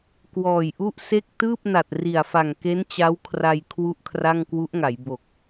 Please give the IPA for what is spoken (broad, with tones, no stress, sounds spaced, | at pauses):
k w ɔː˨˩ j ʔ u˥˩ ʔ s e˥˩ k̚ t ɯː˥˩ p̚ n a˨˩ t̚ r i˨˩ a̯ f a˨˩ ŋ k e˦˥ n t͡ɕ a˦˥ w kʰ r a˧ j kʰ w u˥˩ ʔ kʰ r a˥˩ ŋ k w u˦˥ ʔ ŋ a˩˦ j b o˨˩ k̚